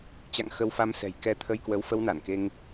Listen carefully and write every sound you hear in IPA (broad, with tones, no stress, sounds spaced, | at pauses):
t͡ɕ a̰˧˨ ŋ x ə˧ w f a˧ m s ɛ̤˨˩ j k ɛ˧ t̪ʰ ə˧ j k w ə˨˦ w f ə˧ w n a˧˩ n k e˧ ŋ